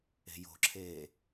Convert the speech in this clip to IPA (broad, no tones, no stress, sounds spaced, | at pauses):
e̤ j o̤ ǁʰ eː